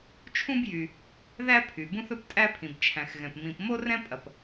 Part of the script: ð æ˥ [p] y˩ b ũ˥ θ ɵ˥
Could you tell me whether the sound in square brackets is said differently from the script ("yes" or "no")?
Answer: yes